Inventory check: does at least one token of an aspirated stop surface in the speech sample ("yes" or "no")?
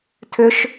yes